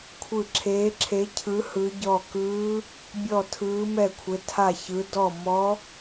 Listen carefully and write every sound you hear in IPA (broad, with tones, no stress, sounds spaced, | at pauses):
kʷʰ ɯ˥˧ ǁʰ eː˦˥ ǁʰ e˦˥ cʰ ɯ˦˥ h ɯ˦˥ ɟ ɔ˥˧ k ɯː˦˥ | bʲ ɔ˥˧ tʰ ɯː˦˥ m ɛ˥˧ kʷʰ e˦˥ tʰ a˥˧ ç ɯ˦˥ d ɔ˥˧ m ɔ˦˥